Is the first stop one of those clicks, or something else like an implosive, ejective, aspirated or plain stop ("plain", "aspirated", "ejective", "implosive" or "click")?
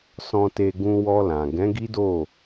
plain